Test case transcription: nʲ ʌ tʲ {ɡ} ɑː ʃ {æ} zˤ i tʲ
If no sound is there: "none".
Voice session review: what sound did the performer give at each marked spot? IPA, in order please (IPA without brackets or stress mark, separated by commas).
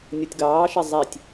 ɡ, ɛ